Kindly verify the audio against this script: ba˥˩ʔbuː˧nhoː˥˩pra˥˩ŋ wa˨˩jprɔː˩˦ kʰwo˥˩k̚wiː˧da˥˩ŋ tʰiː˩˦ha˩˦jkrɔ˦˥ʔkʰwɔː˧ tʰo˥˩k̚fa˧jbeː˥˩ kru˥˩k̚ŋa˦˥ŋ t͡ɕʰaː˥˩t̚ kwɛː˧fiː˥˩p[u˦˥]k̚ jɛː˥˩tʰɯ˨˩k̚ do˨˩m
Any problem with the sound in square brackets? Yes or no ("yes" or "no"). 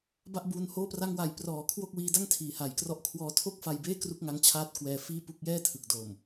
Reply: yes